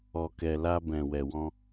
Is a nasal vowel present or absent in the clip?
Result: present